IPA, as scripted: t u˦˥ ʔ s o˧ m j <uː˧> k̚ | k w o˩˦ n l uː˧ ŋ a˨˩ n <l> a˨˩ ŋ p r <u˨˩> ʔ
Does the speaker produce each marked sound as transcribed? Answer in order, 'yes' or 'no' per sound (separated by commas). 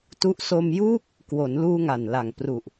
no, yes, yes